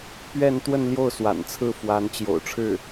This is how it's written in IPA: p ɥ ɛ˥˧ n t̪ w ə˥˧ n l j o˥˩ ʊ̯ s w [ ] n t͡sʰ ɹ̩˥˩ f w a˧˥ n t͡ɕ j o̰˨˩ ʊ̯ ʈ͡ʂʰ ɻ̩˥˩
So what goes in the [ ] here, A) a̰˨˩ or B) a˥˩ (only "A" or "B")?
A